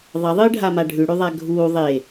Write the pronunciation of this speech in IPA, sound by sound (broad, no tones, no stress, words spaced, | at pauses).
ðˤɐðˤɨːɖʱama ɖʱʉɽʉðˤa ɡʱuː ðˤe